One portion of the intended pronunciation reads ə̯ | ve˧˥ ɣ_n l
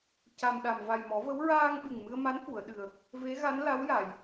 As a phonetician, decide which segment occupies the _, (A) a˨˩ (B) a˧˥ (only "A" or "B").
B